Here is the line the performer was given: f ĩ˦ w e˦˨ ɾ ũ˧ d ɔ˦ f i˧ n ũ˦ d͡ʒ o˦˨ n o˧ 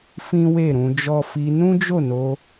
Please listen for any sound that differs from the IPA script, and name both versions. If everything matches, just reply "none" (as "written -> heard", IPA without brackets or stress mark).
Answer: d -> d͡ʒ